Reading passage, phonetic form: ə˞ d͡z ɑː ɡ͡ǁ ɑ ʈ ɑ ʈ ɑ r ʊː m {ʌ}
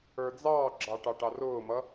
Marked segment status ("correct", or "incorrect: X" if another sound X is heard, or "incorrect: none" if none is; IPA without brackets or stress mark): correct